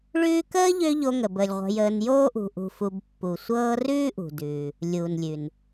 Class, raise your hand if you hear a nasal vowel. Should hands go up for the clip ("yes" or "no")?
no